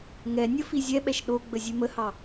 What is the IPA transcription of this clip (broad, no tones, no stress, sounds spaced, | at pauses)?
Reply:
ŋ ɛ nʲ ə f i zʲ ɛ ɓ ɛ ʃ ɗ o ɡ͡b ə zʲ ʉ m ə h ɑ